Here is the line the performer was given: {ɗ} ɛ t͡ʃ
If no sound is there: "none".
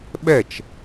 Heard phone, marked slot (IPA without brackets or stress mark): ɓ